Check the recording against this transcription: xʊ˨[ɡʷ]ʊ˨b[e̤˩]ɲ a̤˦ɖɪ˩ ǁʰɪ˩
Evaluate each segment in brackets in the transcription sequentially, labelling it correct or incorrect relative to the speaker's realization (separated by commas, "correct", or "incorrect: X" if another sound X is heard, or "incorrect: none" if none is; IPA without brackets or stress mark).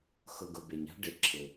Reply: incorrect: ɡ, incorrect: e˩